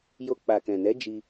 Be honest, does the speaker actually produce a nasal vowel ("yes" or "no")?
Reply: yes